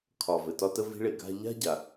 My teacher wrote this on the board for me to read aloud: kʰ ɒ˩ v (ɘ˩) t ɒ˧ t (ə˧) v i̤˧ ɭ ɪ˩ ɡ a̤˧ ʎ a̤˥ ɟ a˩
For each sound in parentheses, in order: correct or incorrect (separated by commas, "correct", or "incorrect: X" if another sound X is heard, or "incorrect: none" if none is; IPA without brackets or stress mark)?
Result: correct, correct